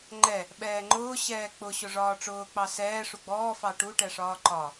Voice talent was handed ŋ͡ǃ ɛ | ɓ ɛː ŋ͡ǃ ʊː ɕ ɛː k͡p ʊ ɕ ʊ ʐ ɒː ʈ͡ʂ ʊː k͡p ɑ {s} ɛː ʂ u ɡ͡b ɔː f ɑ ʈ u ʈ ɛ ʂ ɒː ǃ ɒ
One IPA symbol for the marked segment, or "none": s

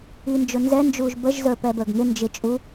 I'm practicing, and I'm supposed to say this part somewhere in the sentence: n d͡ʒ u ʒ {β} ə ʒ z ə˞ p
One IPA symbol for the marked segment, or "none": b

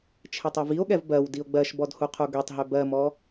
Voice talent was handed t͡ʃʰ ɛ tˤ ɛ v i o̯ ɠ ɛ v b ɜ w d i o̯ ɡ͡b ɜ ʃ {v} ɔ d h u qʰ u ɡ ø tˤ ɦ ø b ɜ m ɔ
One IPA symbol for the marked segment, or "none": b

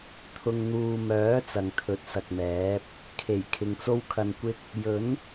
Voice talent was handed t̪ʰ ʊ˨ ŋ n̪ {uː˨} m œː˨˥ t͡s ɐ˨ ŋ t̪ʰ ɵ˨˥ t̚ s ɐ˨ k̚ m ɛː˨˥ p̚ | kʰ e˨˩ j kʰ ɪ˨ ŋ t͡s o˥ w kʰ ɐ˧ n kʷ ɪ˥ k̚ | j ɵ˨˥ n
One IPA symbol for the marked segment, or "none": uː˨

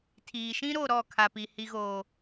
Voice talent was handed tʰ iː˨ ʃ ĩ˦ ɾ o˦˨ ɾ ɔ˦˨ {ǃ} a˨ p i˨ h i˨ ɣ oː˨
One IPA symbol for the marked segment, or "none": kʰ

